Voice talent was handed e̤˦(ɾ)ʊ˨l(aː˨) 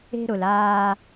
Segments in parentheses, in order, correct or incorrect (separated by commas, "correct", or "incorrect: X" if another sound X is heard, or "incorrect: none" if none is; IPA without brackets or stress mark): correct, incorrect: aː˦